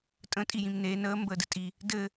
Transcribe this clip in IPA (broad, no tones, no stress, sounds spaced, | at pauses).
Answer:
tʼ ə̃ tʼ i j ĩ m n e n əː m b əː d ɘ tʼ i | d ɘ